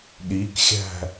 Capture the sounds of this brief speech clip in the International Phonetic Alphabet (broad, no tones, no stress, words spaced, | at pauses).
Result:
ɗikxʲæ̤